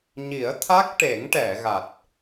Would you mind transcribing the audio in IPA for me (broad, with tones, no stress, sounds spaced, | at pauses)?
ɲ i˨˩˦ ə̯ t̪ʰ a˦˥ k̚ ʈ e˨˩˦ ŋ ʈ ɛ˨˩˨ ɣ a˨˩ t̚